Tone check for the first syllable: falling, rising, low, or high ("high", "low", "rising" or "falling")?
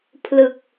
low